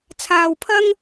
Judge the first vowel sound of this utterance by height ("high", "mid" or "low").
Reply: low